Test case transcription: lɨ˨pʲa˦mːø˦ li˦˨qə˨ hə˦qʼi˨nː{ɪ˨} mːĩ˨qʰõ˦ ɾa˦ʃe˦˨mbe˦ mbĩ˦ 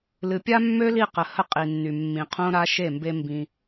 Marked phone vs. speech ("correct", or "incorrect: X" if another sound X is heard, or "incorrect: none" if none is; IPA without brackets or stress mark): incorrect: y˨